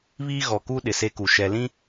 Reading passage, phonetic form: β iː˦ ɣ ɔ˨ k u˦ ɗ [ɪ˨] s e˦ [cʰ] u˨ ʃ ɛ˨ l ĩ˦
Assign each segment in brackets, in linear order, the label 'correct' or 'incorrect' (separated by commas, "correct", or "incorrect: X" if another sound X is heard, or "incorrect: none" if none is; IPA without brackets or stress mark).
correct, incorrect: k